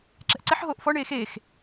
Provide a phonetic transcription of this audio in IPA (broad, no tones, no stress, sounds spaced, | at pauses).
ǁ ɛ̤ ʔ ǀ ɛ ħ ɦ oː ʔ f ɔ ɳ eː x eː x